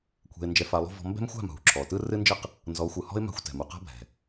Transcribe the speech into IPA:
kʷʰ ɛ̤˧ ɪ̯ n d͡ʒ ɛ˧ f a˧ lˠ ṳ˦ v ɔ̤˧ m b ɛ̤˦ m xʷ a̤˦˨ m ɦ ṳ˨ ǁʰ ɔ˨ t ɯ˦ r ɨ˦ n d͡ʒ ɨ˦ q | n z ɔ˨˦ xʷ ɯ˨ h ɔ̤˦ ɪ̯ m a̤˧ xʷ t ɛ̤˨ m u˨ q a̤˦ bʱ ɛ̤˨

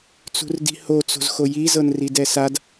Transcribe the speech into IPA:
t͡s ṳ r d i̤ h o t͡s o̤ z x o j i z ɤ n r i d ɛ s a d

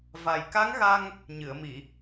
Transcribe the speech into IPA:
v a˨˩ j k a˧˥ ŋ ɣ a˧ ŋ | ɲ ɨ˨˩˨ ə̯ m i˨˩˨

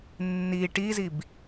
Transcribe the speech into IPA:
nː i ʈ i z i b

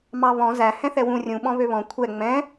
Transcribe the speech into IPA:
m ɑ β ɔ̃ z æ h ɛ̃ θ ɛ w ũ rʲ ũ ɓ ɔ̃ β ø β ɔ̃ kʷʰ ɛ ŋ͡m ɛ̃

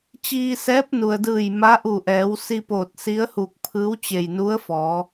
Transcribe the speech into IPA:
t͡ɕ iː˧ s ɛː˧˥ p̚ n u˩ ə̯ d ɯː˧˩ j m a˧˥ ʔ u˧˩ ʔ ɛː˩˧ w s i˧ p oː˧˩ t̚ s i˧˥ ə̯ h u˧˩ k̚ pʰ ɯː˧˥ w t͡ɕ e˧˩ j n u˧˥ ə̯ f ɔː˩˧

